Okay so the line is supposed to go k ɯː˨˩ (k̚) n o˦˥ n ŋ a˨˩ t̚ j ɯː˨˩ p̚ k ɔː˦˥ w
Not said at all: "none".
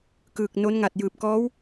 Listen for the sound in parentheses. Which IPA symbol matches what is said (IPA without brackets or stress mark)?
k̚